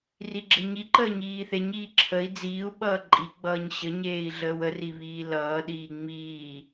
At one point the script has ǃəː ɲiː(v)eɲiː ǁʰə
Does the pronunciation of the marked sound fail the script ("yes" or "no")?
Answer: yes